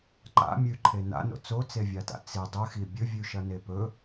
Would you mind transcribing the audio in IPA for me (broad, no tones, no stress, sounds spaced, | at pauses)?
ǃ a̰ mʲ ʉ ǃʰ e n a̰ n o̰ t͡s o t͡s e vʲ a t a̰ t͡s i dˤ ɨ x i bʲ ɵ vʲ ʉ ʃ ɐ n e p ɵ